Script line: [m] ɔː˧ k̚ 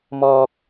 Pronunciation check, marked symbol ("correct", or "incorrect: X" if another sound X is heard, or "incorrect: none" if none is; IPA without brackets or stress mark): correct